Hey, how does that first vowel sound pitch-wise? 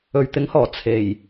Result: low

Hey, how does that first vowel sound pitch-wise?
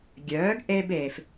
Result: rising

